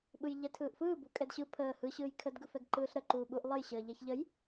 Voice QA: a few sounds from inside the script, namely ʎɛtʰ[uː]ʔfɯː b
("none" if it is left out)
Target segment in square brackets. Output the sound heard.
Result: ɯː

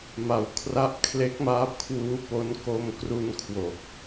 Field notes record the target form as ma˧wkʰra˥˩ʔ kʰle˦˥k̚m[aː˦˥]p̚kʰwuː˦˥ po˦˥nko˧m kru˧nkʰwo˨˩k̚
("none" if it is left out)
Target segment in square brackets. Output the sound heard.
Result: aː˦˥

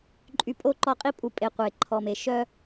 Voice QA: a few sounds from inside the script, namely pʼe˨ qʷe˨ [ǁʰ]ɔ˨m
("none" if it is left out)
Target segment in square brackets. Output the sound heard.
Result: ǃʰ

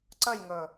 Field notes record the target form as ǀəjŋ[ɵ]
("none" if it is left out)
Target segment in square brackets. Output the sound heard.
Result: ɵ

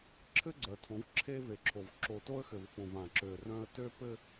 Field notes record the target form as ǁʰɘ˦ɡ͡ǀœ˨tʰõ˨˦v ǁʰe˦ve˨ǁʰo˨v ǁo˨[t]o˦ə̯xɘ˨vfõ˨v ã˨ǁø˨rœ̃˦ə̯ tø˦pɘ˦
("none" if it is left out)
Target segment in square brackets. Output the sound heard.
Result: t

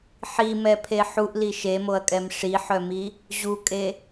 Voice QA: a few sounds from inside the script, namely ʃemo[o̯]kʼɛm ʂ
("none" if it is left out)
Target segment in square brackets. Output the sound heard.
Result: ɐ̯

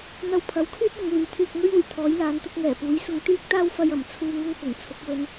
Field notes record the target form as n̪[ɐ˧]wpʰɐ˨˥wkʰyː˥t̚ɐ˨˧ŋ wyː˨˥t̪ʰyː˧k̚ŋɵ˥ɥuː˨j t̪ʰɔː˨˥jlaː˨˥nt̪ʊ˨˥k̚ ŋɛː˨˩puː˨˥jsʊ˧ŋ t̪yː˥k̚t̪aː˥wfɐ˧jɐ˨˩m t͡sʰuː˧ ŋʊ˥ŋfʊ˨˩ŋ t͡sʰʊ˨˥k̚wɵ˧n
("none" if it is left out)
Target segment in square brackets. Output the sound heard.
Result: ɐ˧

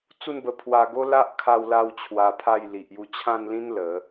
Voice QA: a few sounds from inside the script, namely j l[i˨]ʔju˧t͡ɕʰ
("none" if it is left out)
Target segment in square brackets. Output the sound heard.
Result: i˨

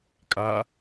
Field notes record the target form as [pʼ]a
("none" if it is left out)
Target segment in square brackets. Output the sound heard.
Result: kʼ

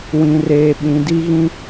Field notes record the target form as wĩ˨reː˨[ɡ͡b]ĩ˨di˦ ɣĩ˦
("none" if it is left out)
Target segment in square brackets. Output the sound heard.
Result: ɓ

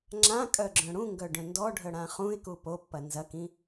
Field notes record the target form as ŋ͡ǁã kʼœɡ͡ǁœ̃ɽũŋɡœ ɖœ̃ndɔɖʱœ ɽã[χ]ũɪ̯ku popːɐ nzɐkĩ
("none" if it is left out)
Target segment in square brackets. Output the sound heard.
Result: χ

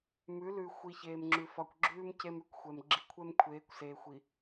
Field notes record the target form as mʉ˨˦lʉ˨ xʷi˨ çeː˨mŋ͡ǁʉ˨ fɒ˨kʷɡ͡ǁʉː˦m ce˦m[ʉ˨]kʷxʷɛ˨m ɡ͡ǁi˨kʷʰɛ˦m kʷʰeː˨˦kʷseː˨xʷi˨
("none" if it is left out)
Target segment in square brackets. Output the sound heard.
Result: ʉ˨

